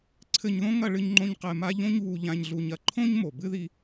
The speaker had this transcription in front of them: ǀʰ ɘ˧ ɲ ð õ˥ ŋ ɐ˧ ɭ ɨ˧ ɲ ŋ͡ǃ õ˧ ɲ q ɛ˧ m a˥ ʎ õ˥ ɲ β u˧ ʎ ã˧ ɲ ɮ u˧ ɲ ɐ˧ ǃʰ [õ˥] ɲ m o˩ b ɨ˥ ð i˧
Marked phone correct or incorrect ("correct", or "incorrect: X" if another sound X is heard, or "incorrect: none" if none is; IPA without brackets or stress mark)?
correct